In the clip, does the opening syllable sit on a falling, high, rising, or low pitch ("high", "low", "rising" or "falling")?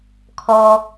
high